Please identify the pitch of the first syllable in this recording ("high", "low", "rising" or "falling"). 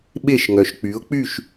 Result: falling